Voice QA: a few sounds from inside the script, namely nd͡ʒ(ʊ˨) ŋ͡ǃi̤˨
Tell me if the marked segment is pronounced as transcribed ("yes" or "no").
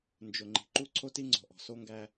yes